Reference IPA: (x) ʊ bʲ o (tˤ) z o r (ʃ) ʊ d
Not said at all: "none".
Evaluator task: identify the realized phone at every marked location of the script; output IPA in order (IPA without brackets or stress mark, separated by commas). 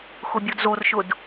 x, d, ʃ